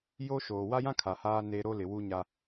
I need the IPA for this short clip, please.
j o˦ ʃ oː˨ w a˦ j ã˦ kʰ a˨ h aː˦ n e˦ ɾ o˦ l ɪ˨ w u˦ ɲ a˦

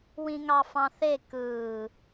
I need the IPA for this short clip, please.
w ĩ ŋ ɑ f ɑ̃ θ e k ɯː

